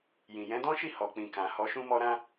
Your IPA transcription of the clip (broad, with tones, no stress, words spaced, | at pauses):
jĩ˨jɛ̃˨˦dɔ̃˦ʃi˦˨ hɔ˨k͡pĩ˨kã˨ hɔ˧ʃũ˦mɔ˦ɾã˦